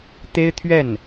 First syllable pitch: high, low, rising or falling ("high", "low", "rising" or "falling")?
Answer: high